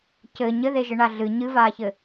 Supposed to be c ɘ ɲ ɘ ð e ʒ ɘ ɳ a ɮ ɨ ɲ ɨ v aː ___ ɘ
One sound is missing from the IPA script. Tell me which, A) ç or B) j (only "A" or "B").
A